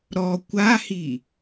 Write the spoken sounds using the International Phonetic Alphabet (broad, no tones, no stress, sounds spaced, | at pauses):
ɾ ɔ kʷ a h i